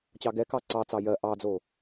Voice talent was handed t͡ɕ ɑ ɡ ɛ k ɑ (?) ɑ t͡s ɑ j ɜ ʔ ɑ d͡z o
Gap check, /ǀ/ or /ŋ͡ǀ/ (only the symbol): ǀ